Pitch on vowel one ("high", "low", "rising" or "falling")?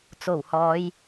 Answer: low